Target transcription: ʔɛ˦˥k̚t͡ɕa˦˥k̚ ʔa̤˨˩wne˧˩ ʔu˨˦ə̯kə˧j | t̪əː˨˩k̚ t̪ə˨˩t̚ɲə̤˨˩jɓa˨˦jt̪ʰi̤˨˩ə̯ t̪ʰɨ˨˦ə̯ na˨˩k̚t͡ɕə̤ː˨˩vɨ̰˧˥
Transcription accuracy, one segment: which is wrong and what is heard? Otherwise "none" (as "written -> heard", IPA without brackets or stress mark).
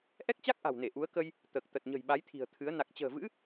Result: none